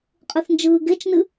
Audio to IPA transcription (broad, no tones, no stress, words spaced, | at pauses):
qʼɯθnd͡ʒɯːɡet͡ʃnɨ